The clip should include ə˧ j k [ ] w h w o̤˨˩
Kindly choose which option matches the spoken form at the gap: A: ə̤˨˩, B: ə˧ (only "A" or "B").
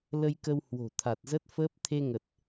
B